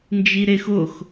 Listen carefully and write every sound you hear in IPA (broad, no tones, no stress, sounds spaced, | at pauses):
n d͡ʒ i ɾ e x ʊ x